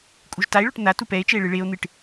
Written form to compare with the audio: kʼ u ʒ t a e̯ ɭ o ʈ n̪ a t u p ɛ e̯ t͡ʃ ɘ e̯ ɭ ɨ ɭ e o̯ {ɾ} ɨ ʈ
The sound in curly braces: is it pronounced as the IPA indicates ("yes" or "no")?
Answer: no